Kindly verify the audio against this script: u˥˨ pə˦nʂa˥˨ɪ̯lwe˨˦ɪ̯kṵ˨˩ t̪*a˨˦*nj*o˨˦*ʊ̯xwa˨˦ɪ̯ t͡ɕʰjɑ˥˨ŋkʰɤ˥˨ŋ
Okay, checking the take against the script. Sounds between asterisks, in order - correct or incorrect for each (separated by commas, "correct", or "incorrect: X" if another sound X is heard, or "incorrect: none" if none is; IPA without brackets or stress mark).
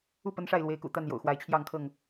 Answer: incorrect: a˥˨, incorrect: o̰˨˩